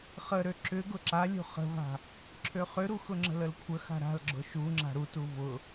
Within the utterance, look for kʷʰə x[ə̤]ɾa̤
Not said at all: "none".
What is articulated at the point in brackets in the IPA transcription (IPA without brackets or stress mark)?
a̤